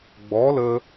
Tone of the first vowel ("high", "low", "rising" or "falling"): rising